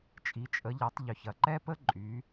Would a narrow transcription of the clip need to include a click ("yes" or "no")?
yes